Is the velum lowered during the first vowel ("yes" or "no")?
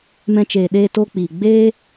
yes